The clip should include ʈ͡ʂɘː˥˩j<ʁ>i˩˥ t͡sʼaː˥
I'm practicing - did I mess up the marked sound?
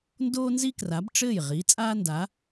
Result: no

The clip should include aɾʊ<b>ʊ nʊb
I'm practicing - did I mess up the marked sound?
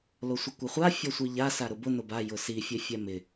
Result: no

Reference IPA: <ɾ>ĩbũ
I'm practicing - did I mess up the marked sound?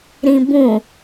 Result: no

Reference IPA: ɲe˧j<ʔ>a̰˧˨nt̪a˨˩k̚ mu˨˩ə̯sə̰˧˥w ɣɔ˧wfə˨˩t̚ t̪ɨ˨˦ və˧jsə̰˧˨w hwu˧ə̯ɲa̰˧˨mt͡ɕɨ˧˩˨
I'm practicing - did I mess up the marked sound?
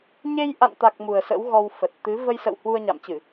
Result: no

